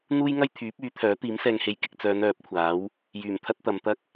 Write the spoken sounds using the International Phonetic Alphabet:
n̪uː˥jŋɐ˥j t̪ʰyː˨˥p̚yː˨˥t̪ʰœː˨˥ t̪iː˨˥msɛː˧ŋhe˨˧j kɪ˨k̚t͡sœː˨˧n œː˨˥p̚kʷʰaː˨˥w | jyː˨˩mt̪ʰɐ˥t̚t̪ɐ˨˧mt̪ɐ˥k̚

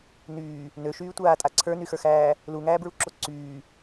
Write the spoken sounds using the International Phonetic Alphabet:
nyː | nøʃyːtʷaːtʼa ǀʰə˞nyxə˞xæː | luŋæːbɹuǁo ǀyː

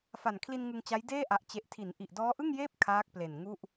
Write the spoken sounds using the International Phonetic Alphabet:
fa˨˩nkʰli˧n ŋɯ˧ŋt͡ɕa˦˥jdeː˥˩ ʔa˨˩ʔt͡ɕe˨˩ʔtʰi˩˦n ʔi˨˩ʔdɔː˦˥ʔɯ˥˩ŋjeː˥˩p̚ kʰaː˦˥k̚ple˨˩n ŋu˥˩ʔ

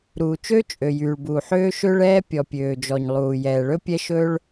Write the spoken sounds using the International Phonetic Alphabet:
ɾuː˩ t͡ʃø˥ t͡ʃʼø˩jyː˩ɭbuː˩ ħøː˥ʃø˥ɭɛː˥ pʲɔ˩pʲøː˩d͡ʒɔ˩ɲ lˠuː˩jɛː˩ɭɵ˥ pʲɛ˥ ʃɵː˥ɭ

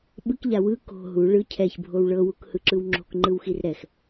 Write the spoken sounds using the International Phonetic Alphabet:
ɓɯkʎa wɯ ko̤ ɦu ɭɯ cʰɛçbʱow ɭɤwukhɯǁɯw ŋ͡ǁo̤kŋ͡ǃɯwxir ɾɛx

